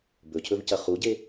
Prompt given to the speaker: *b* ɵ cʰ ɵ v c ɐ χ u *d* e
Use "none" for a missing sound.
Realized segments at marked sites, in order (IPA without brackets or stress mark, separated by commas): b, ɟ